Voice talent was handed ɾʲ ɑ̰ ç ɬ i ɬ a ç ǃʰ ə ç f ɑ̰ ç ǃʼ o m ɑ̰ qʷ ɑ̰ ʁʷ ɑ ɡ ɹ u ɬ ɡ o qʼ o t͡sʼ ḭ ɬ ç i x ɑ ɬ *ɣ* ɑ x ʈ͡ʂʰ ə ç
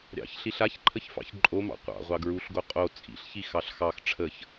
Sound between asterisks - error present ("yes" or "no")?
yes